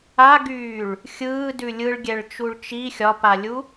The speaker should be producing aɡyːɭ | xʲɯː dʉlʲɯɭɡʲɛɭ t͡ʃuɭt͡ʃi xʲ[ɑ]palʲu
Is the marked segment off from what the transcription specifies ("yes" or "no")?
yes